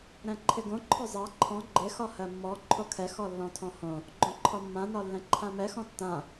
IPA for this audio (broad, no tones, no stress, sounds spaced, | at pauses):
ɾ ɛ̃ ǃʰ ɪ ɡ õ ǃʰ ɔ zˤ a ǃʰ ɔ̃ ɡ͡ǃ ɪ x ɒ h ɜ mː ɔ ǃʰ o kʰ ɛ x ɔ lː ɔ̃ tʰ ɔ̃ h õ | ɡ͡ǃ õ ǃʰ ɒ mː ã n ɒ lː ɛ̃ ǃʰ ã m ɛ x ɔ̃ tː ã